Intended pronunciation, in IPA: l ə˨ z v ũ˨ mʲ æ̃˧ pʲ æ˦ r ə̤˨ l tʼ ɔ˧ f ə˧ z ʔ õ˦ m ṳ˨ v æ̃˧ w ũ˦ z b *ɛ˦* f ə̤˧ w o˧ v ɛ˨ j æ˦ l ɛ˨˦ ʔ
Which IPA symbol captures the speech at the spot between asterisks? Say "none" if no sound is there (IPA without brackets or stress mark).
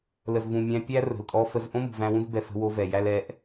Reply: ɛ˧